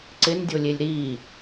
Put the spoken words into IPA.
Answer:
ǀɪndʲolʲelʲ ɾi

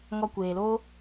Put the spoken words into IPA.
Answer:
ŋɔ˧ kʷeː˨loː˧

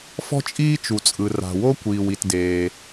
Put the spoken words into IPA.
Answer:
fɔ̤˥t͡ʃʼiː˥t͡ʃu˩t͡sʼɯ˩ ra̤˩wo˥kʷiː˩w i˩tdeː˩

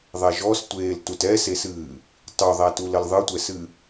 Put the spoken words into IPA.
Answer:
ðˤɛʒɔstʷeːl tutɛsesɨː | tˤuðˤætul əlðˤɨtʷɛsɨ

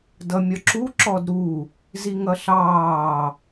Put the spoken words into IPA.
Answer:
dʌmʲɒǁu ǁɔdɾu | ziŋʌɬɑː

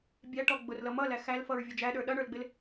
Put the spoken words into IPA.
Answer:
bʲæʈɔ ɡ͡bʊrlʌ mʌlæ xælfʌɹ vʲʌd͡ʒæɗə˞ ɗʌɳə˞lɡ͡bɪl

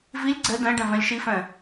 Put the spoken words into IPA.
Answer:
vilʲ ɡ͡ǀɛ dɛ̃ɖɛ̃ vɛ̃lʲʃifɛ̃

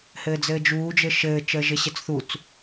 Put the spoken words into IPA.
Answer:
hɘːd͡zɘːd͡ʒuː d͡ʒɘʃɘː t͡ʃəːʒɘɕɘt͡sθut͡s

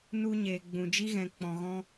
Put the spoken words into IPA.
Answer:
nu˧ ɲeː˨ɡ͡bũ˨d͡ʒi˦ɣɛ̃˨ k͡pɔ̃˨ɣɔ̃˧

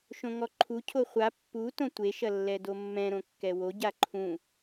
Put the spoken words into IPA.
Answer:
ʃõŋɔǃʰu cʰoχʷa pːu tõtʷe ʃɐlːɛdomːɛ̃ ɾõkːɛwo ɟaǃʰũ

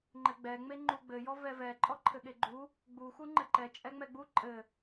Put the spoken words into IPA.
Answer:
ŋ͡ǃɘɡ͡bɛ ŋ͡meŋ͡ǃuɡ͡bɘ jɔvɛvɛ ǃʼɔǃʰɘɠeɡ͡ǃu | ɡ͡bu xuŋ͡ǃɘǃɛ t͡ʃʼɛŋ͡mɛɡ͡bu ǃʼɘ

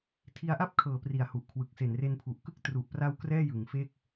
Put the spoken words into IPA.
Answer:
tʰi˧a̯ʔa˥˩p̚ kʰɤː˩˦pri˨˩a̯ hu˨˩ʔkʰwɯ˨˩k̚ se˨˩nre˧npʰu˨˩ʔkɯ˥˩k̚ tru˨˩ʔpra˧w krɛː˥˩jɯ˩˦ŋfe˥˩k̚

